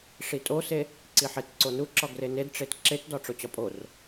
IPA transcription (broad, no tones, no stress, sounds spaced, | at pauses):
ʂ i tʼ o s e | ǀ i ħ e t ǀ o n u ǁ ɒ ɡ r e n e d ʈ͡ʂ e t ǁ e t d ɒ ʈ͡ʂ o t͡ɕ ɒ pʼ o r